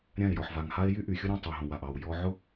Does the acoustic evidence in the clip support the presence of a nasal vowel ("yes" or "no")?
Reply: yes